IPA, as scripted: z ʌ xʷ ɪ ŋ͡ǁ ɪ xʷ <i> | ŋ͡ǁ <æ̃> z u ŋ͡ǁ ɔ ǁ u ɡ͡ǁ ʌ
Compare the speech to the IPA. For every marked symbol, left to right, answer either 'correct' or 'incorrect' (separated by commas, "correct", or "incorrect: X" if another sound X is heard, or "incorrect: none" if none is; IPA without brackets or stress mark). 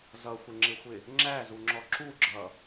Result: incorrect: ɪ, incorrect: æ